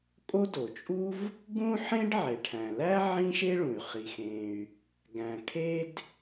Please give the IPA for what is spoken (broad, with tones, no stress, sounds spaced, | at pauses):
kʼ o˥ d o˩ t͡ʃʼ u˥ v | ɡ ũ˥ ħ ẽ˥ ɖ ʕ e˩ ʈʰ æ̃˩ l æ˥ ʕ ĩ˥ ʃ e˥ ɭ ũ˩ y̯ χ i˩ x ẽ˩ y̯ | ɡ æ̃˩ kʰ e˥ d